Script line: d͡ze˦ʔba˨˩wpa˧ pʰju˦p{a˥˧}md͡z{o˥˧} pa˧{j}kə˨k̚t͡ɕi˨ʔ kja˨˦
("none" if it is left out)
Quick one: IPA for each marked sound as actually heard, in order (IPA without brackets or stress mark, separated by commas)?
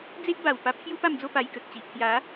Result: a˥˧, o˥˧, j